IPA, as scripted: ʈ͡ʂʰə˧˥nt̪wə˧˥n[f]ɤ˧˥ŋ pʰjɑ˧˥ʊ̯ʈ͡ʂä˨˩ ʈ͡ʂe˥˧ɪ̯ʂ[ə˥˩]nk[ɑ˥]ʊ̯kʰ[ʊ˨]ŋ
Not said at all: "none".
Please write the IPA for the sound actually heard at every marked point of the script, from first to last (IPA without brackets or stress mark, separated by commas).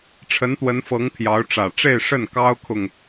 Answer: f, ə˥˩, ɑ˥, ʊ˨